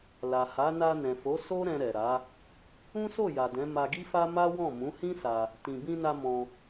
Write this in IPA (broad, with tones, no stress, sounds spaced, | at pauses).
l a˨ h a˨˦ n a˧ n ɛ̃˨ f o˨˦ s o˦ ɾ ɛ̃˧ ɾ ɛ˨ ɾ a˨˦ | ũ˦ s o˦˨ j a˨ d ɛ̃˨˦ m a˧ ɡ i˦ f a˦ m a˦ w ɔ̃˦˨ m ũ˨˦ h ĩ˦ s a˧ | t ĩ˨ b ĩ˧ n a˧ m ɔ̃˧